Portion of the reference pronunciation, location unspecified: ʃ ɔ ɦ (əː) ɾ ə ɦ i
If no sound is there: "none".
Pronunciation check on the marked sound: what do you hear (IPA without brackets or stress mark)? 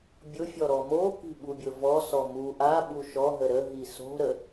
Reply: ə